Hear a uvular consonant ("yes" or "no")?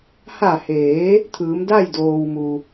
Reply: no